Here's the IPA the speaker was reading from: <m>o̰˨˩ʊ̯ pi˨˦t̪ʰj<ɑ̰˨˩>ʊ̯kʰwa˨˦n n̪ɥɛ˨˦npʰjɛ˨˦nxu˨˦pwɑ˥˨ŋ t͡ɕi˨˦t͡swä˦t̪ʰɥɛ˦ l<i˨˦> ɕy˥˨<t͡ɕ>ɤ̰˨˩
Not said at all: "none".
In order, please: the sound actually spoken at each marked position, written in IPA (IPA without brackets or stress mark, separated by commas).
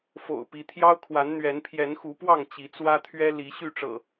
f, ɑ˦, i˨˦, ʈ͡ʂ